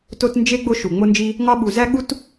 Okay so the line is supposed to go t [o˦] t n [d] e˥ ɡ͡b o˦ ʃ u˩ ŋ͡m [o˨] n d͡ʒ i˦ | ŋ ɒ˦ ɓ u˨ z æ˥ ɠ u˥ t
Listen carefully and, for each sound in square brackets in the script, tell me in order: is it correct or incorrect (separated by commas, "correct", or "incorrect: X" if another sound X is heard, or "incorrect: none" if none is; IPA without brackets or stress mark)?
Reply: correct, incorrect: d͡ʒ, incorrect: o˦